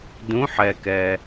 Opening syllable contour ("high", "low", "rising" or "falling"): rising